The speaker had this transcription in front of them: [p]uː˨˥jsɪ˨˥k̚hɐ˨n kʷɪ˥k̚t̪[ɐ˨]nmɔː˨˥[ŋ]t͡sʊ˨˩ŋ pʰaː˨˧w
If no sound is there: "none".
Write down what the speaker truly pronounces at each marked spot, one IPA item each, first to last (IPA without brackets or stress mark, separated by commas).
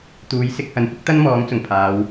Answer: t̪, ɐ˥, ŋ